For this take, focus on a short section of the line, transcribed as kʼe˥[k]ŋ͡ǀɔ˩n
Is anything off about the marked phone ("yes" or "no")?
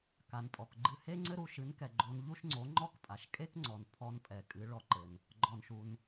no